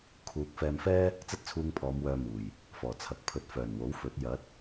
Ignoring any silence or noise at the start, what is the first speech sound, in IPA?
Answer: kʰ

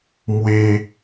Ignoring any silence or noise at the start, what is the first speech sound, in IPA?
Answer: m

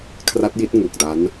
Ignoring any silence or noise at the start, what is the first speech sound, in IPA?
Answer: kʰ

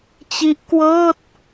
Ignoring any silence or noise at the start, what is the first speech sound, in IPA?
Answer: t͡ɕ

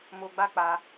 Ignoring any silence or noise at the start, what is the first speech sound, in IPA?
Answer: m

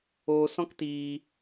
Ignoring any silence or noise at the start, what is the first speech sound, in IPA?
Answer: oː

